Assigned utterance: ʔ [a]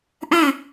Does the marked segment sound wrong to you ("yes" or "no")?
no